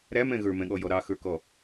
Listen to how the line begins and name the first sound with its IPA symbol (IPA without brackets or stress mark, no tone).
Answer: ɾ